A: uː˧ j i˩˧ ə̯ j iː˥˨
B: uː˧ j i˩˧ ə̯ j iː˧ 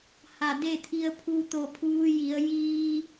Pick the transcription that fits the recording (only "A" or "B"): B